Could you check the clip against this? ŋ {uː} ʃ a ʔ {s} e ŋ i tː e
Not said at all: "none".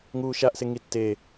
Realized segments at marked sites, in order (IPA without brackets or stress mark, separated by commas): uː, s